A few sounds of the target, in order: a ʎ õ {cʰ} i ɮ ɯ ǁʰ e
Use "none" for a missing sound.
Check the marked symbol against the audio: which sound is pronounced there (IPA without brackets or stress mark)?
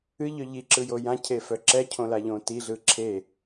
t